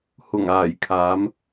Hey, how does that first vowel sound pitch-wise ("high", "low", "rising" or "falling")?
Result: low